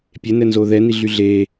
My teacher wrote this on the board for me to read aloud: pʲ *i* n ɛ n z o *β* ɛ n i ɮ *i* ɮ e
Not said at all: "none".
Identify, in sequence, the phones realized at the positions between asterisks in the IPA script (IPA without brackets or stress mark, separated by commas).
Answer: e, ð, y